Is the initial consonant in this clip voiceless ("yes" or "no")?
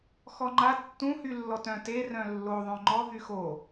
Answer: yes